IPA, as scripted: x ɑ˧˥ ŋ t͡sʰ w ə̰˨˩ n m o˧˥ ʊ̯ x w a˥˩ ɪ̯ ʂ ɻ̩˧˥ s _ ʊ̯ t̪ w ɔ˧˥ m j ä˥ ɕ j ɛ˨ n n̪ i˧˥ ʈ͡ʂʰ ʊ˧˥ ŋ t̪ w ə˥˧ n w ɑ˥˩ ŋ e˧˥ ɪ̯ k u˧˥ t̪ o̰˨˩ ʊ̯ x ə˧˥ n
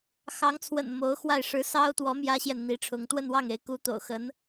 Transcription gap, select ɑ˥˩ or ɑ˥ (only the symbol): ɑ˥